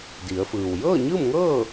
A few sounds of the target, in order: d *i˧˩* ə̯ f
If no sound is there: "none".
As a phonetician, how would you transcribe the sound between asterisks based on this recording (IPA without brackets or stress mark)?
i˩˧